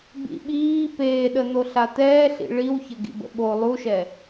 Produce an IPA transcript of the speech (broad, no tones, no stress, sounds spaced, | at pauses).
b ḭ ɓ iː p eː ɗ ə n̪ o ɬ a t̪ ɛː ɬ ḭ ɭ i w ç ə ɡ ḭ b ə̰ ɓ o lˠ u ʃ ɛ